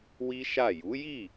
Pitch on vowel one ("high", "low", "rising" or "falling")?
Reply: high